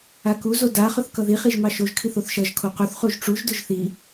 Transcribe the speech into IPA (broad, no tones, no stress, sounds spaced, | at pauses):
a k u z o d a χ ʊ θ k ʌ ð i χ i ʒ m ɑ ʃ o ʒ kʰ i θ o θ ʃ ʌ ʒ kʰ o q u θ χ u ʒ ʈ͡ʂ u ʒ d ʊ ʒ θ i